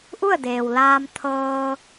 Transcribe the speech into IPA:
ʔ u˥˨ ə̯ d eː˩ w l aː˧ m t̪ʰ ɤː˧

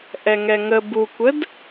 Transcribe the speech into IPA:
ʔ ɛ ŋ ɛ ŋ ə b u kʷ ə d

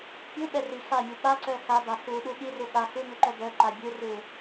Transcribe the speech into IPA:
pʲ u ɓ ɛ r i x a mʲ u ɓ a ǀ œ x a b a x u ɗ u ɠ i r u ɠ a x u m ʉ ǃ œ b œ ǃ a bʲ u r u

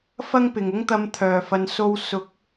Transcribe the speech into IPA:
f ɐ˥ ŋ p ɪ˨ ŋ ʊ˥ ŋ t̪ ɐ˧ m t̪ʰ œː˨˩ f ɐ˨ n s o˧ w s ʊ˨˥ k̚

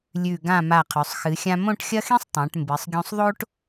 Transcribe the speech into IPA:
lʲ ʉ˧˩ ɡ ã˧˩ m a˧˩ qʰ ʉ˩˧ sˤ x ɨ˩˧ xʲ ã˧ m õ˥˧ ʈ xʲ ɐ˥ x ĩ˥ sˤ tˤ ã˩˧ ʈ m b ɨ˩˧ sˤ ɡʲ õ˧ sˤ ðˤ o˥ ʈ

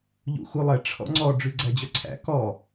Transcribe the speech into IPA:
ʎ ṵ x u lˠ ɛ ʈ͡ʂʰ ɔ̰ ŋ͡ǀ ɔ ɖ͡ʐ ʉ ɡ͡ǀ æ d͡ʑ œ ǀʰ æ̰ k ɔ

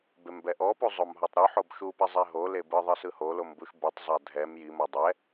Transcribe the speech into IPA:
b e m b ɛ ʔ ɔ p u zˤ o m ɦ ɔ tˤ ɾ u ħ o b ʃ u p ɛ zˤ e ɦ o l e b ɯ ðˤ ɯ s ɯ h o l o m b u ʃ b u tˤ zˤ a dʱ ɛ m j i m ɤ dˤ ɛ

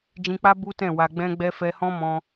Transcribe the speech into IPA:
d͡ʒ ĩ˧ k͡p a˦ b u˦ t ɛ̃˦˨ w a˧ ɡ͡b ɛ̃˦ ɡ͡b ɛ˦ f ɛ˧ h ɔ̃˦ m ɔ̃˧

